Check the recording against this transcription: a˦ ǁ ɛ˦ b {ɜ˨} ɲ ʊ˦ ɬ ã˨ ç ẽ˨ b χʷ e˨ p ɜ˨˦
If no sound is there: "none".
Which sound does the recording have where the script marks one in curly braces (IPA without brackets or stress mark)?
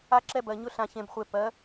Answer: ɜ˨